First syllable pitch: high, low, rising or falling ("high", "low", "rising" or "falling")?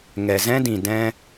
low